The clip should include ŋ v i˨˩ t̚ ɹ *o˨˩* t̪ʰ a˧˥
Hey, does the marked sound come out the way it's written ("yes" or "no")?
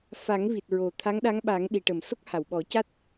yes